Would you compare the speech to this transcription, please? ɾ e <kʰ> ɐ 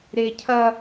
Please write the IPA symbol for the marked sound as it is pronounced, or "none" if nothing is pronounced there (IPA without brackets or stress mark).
cʰ